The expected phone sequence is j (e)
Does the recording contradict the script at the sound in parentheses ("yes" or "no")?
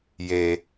no